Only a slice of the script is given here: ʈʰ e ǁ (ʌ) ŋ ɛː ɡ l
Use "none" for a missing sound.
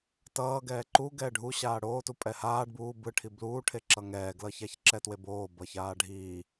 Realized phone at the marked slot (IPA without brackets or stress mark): ʌ